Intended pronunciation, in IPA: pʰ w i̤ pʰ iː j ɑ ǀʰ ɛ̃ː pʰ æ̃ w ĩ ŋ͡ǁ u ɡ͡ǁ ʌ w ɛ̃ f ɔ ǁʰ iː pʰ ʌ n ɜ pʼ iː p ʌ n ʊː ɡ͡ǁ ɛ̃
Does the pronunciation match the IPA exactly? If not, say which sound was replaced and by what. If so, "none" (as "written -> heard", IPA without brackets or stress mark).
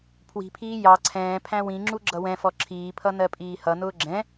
p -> h